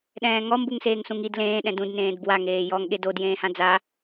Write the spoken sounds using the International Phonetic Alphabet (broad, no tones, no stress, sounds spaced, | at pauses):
ɗ ɛ̃ː ŋ ɔ m b u ŋ s eː ŋ s ũ ŋ i d l ẽː ɗ ɛ̃ d ũ d n ẽː d b w a ŋ eː j ɔ ŋ ɠ e d o d j ẽː h ã d͡z a